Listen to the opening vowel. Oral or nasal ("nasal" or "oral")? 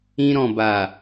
nasal